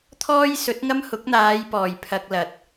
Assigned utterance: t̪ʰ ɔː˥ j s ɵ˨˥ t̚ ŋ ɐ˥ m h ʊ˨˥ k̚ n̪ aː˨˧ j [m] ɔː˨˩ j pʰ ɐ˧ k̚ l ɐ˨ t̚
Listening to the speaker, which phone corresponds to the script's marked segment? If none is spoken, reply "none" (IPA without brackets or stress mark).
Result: p